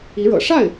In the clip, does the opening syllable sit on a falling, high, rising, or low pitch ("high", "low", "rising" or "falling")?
rising